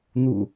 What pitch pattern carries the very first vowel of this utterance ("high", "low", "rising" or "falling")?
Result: low